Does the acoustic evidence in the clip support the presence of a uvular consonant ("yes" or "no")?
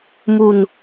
no